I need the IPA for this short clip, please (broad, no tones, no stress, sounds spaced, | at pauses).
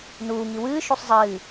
n uː ŋ i w ɨː ʃ u sˤ zˤ ɨː